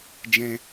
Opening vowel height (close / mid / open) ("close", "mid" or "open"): mid